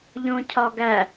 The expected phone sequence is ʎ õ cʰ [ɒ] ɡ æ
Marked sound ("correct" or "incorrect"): correct